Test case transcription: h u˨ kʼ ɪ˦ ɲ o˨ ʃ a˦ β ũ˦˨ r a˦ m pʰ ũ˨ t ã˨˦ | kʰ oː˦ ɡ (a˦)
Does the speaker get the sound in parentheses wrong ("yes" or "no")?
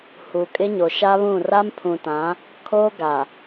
yes